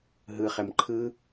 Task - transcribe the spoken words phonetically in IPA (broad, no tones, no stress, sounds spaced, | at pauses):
ɦ ɯ χ ɛ m ǃʰ ɯ